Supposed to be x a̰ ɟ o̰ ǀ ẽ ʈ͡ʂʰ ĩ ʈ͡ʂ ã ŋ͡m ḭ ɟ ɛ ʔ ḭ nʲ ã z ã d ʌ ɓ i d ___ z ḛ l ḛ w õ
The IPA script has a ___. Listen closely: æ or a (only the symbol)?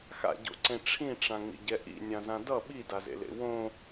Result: a